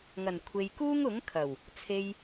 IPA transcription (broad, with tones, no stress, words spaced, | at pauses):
ŋɐ˨˩nkʷʰe˨j kuː˥ŋʊ˨˥ŋkʰɐ˨˩w | t͡sʰe˧j